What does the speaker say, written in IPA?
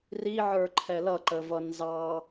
r i ʕ ə˞ ǃʰ ɛ l ʌ ǃ ə v ʌ n z ɑ

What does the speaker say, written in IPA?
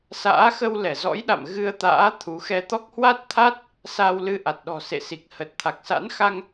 s a̰ː˧˥ x ə˧ w l ɛ˧˩ z ɔ̰˧˥ j ɗ a̰˧˨ m ɣ ɨ˧ ə̯ t̪ a̰ː˧˥ t̪ʰ u˨˦ x ɛ˧ t̪ ɔ˦˥ k̚ h w a˦˥ t̚ t̪ʰ a˦˥ t̚ | s a˧ w l ɨ˧ ʔ a˨˩ t̚ ɗ ɔ̤˨˩ s ḛ˧˨ s i˨˩ k̚ h ə˨˩ t̚ t̪ʰ a˨˩ k̚ s a̰˧˥ n x a˧ ŋ

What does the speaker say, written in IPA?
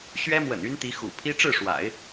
ɕ ɥ ɛ˥ m w ə̰˨˩ n y˥ n t̪ i˧˥ x ṵ˨˩ pʰ i˥ ʈ͡ʂ ɻ̩˥˩ ʂ w a̰˨˩˦ ɪ̯

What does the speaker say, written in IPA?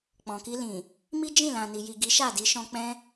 k͡p ɔ̃˨ k i˧ l ĩ˨ | m i˦ d͡ʒ ĩ˦˨ l ã˨ n i˨ j i˨ ɡ i˨˦ ʃ a˦˨ d i˧ ʃ ɔ̃˧ k͡p ɛ̃˦

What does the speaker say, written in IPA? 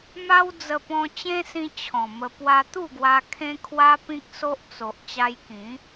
m a˦ w d͡z ə˧ p ɔ̃˧ t͡ɕ ẽ˦ s ĩ˧ t͡ɕʰ ɔ̃˨˩ m ə˧ p w a˧ t̪ u˥˧ ɡ w a˧ kʰ ẽ˦ kʰ w a˦ p ĩ˦ k̚ s o˦ ʔ t͡s o˨ ʔ t͡ɕ a˧ j k ĩ˨˦

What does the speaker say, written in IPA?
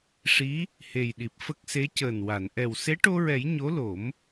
ʂ i˧˥ | h e˨˩ j ɗ i˨˩ p̚ f ə˦˥ k̚ s e˧˥ c əː˨˩ n w a˨˩˨ n ʔ ɛ˨˩ w s e˧˥ ʈ o˧ ɹ ɛ˨˩˦ j ɲ o˧˥ l o˨˩˦ m

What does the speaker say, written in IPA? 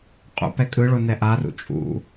qʼ ṵ p ɛ kʼ ɯ ɭ o n ɛ ʔ a r ṵ t͡ʃʼ ṵ

